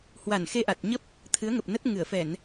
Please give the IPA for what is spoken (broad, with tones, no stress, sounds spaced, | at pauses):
h w a˧˩ n x e˧ ʔ a˨˩ t̚ ɲ ə˦˥ p̚ | t̪ʰ ɨ˨˦ ə̯ ŋ ə˨˩ p̚ n ə˦˥ t̚ ŋ ɨ˧˩ ə̯ f ɛ˧˩˨ n